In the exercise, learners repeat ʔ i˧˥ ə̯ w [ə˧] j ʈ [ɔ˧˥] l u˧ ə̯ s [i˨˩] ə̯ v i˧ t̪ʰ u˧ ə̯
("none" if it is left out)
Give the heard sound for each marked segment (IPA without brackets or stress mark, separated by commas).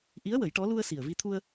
ə˨˩˦, ɔ˧˥, i˨˩